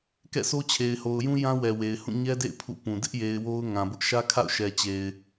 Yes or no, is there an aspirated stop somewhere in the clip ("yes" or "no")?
yes